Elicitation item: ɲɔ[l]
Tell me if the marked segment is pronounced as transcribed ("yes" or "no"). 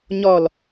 yes